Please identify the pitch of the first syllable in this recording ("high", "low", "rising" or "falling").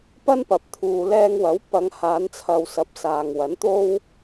high